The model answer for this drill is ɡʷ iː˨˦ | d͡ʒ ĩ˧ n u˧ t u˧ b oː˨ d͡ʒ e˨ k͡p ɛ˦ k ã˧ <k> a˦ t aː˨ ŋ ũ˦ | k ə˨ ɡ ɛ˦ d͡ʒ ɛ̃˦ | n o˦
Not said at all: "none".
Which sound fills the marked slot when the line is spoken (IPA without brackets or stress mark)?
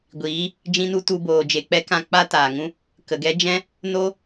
k͡p